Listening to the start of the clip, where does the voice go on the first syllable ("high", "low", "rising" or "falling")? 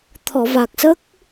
low